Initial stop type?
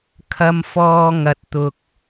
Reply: aspirated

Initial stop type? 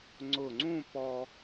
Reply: click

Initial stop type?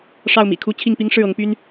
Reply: aspirated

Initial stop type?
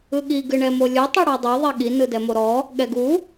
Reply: implosive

